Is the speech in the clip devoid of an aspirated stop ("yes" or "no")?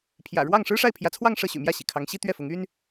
no